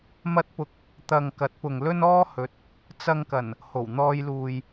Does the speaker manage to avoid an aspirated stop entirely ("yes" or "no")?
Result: yes